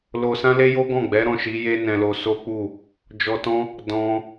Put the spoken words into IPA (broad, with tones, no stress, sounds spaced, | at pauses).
l o˧ s ã˦ l e˦ j o˦ ɡ ɔ̃˦˨ ɡ͡b ɛ˨˦ ɾ ɔ̃˦˨ ʃ i˨˦ j e˦ n ɛ̃˧ l o˧ s o˦ k͡p u˦˨ | d͡ʒ ɔ˧ t ɔ̃˦ | d ɔ̃˦